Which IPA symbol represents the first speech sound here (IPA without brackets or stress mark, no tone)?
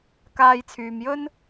k